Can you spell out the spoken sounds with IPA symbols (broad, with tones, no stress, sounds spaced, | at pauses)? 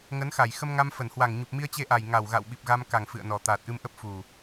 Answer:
ŋ ə˨˦ n x a˧˩ j x ə˧ m ŋ a˧ m f ə˧˩ n h w a˨˩ ŋ ɲ u˨˩ p̚ m i˧ ə̯ t͡ɕ e˧ ʔ a˨˩ j ŋ a˨˩ w ɣ a̰˧˨ w ɓ i˨˩ p̚ ɣ a˧ m k a˨˩ ŋ f ɨ̰˧˨ ə̯ n ɔ˨˩ t̪ aː˨˩ t̚ ʔ ɨ˧ m ʔ ə˦˥ p̚ f u˨˩